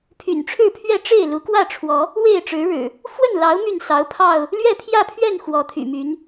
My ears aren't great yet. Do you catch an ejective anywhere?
no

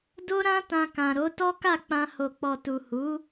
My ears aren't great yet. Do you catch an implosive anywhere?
no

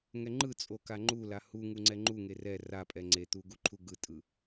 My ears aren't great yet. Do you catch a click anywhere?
yes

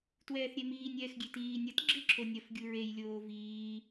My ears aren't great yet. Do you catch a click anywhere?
yes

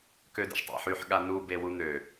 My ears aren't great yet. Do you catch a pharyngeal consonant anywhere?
yes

